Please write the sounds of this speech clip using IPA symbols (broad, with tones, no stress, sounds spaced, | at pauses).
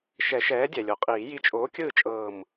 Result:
ʃ ɛ˨˩˦ ʃ ɛː˨˥ dʲ ɛ˩ lʲ o˩ qʼ iː˨˩˦ j i˧˩ t͡ʃʼ oː˨˥ kʲ ɯː˥˨ t͡ʃʼ ɤː˧˩ m